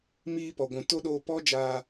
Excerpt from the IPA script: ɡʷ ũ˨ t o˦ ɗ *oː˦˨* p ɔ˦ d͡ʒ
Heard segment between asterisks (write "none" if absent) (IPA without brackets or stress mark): oː˧